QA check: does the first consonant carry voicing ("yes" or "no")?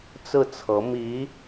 no